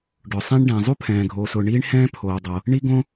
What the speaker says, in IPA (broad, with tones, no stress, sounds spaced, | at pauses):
ɖ ʊ˩ sˤ ẽ˥ ɳ ɖ ɛ̃ː˩ zˤ u˥ pʰ ɛ̃ː˩ ɡʱ oː˩ s ʊː˩ ɳ iː˥ ɳ h ɛ̃ː˥ pʰ oː˩ dˤ o˩ | ɳ i˥ ɡ õ˥